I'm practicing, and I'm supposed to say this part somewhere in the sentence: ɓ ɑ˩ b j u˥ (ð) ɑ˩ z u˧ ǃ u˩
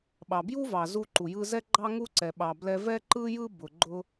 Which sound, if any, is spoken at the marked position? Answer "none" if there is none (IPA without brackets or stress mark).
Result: v